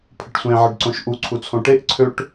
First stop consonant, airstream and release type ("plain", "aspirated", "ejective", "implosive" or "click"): aspirated